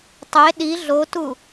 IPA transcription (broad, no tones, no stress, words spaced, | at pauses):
tˤe ɗi ɮotu